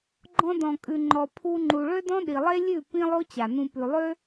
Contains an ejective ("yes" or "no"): yes